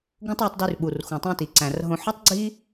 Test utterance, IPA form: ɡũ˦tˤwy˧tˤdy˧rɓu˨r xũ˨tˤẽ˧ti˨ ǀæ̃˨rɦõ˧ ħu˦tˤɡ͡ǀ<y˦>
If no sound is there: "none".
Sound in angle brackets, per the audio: i˦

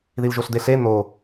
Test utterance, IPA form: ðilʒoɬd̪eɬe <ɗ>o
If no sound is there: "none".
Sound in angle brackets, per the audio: n̪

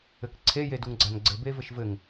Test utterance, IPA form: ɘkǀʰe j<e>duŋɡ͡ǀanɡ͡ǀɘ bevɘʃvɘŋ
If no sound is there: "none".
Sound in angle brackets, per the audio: e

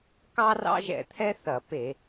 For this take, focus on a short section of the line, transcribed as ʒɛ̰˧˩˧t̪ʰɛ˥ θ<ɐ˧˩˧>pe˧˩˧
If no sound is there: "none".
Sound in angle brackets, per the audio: ɐ˧˩˧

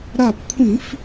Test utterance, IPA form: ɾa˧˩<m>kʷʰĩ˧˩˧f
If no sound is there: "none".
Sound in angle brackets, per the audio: p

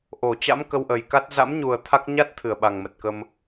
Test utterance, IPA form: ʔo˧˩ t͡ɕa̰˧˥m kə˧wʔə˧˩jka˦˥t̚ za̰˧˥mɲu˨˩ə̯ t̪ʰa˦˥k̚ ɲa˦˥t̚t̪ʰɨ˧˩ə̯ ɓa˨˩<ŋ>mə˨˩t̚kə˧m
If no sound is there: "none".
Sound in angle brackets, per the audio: ŋ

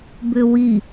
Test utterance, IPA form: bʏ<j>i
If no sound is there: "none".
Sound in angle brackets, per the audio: w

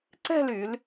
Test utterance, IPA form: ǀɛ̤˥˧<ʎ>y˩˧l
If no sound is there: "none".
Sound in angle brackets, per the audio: l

